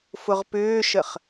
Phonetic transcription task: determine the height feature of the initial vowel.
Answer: high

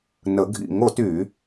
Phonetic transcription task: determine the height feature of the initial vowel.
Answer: mid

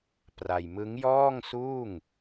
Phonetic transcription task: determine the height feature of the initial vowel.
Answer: low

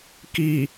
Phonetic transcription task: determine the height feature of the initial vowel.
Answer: high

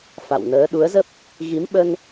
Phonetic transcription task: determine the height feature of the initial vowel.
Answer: low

